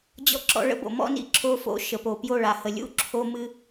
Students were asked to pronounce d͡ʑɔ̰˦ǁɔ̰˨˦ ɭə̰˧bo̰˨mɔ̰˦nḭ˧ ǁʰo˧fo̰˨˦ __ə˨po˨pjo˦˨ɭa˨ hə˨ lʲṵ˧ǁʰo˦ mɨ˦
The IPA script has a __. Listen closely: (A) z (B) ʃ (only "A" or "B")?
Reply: B